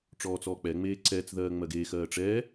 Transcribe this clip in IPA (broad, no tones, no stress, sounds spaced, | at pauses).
ʈ͡ʂ ɔː t͡s ɔː k͡p ɛ ŋ͡m eː ǀ ɛː t͡s ð ɜː ŋ͡m ɜ ɡ eː x ɜː ʈ͡ʂ ɛ